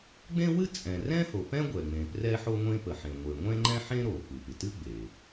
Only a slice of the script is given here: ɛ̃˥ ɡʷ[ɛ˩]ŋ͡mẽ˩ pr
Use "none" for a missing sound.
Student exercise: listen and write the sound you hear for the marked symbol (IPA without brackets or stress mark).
ɛ˩